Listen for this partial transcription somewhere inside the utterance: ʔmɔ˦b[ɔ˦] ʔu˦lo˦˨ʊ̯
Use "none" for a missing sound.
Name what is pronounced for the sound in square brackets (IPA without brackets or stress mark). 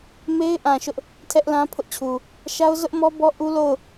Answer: ɔ˦